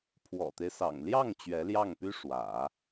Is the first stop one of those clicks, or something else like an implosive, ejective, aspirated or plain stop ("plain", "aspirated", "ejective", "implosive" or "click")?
aspirated